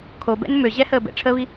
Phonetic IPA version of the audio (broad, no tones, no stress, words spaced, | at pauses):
kʰobɛ̰n møʑɛhəː bɛ̰ʈ͡ʂʰəːβi